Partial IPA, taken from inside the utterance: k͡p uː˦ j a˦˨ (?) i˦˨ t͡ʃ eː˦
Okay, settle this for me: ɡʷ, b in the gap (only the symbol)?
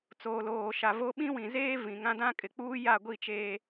ɡʷ